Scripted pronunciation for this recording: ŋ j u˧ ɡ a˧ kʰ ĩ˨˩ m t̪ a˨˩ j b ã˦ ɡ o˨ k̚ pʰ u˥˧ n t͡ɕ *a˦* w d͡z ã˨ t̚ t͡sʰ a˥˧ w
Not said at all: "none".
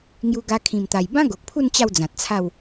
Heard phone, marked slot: a˥˧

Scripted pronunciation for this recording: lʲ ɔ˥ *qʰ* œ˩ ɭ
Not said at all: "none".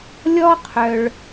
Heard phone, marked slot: qʰ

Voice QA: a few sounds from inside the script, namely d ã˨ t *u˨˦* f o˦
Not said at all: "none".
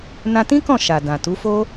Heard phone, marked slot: u˨˦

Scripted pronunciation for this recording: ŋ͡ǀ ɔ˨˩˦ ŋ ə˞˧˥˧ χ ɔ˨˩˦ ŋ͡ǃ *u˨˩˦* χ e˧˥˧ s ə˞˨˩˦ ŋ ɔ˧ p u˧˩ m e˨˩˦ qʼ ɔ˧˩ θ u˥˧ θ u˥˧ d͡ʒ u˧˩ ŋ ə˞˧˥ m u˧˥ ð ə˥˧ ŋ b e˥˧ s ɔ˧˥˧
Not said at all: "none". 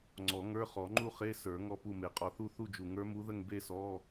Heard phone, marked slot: u˥˧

